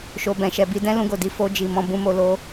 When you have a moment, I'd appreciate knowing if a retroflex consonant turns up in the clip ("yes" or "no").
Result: no